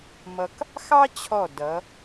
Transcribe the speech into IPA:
mʌ˧k | xɑ˥t͡ɕʰɔ˧˩ dʌ˩˧

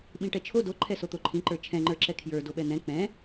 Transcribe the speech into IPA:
ɓĩʈɛt͡ʃʰo do ǃʰɛsot̪oǃʰĩ ǃə˞t͡ʃʰɛ̃ŋ͡ǃə˞ǁɛ kʰjə˞ doɓɛn̪ɛ̃ k͡pɛ̃

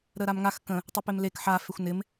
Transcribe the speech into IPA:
ɾəɾamŋax kə̃ | tˤɪpemlek ħa fexʷnɪm

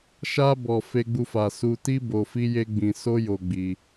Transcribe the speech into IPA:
ʃa˧bɔ˨ fe˧ɡ͡bu˧fa˨ su˧ti˦ bo˧fi˦je˦ɡ͡bĩ˧ so˦jo˧ɡ͡bi˧

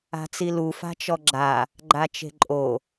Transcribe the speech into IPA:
a̤t͡silu fa̤t͡ʃɔɡ͡ǁa | ɡ͡ǃat͡ʃe̤ǃʼo

